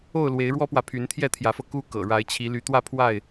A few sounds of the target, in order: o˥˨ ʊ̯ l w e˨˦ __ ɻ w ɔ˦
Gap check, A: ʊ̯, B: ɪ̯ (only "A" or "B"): B